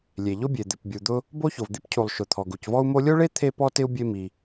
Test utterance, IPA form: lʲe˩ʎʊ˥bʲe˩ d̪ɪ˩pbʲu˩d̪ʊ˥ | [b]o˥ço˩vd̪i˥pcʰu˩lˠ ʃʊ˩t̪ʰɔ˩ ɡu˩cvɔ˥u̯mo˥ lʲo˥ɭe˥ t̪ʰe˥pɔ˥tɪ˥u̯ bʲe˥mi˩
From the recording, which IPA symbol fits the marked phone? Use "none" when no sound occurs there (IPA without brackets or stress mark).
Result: b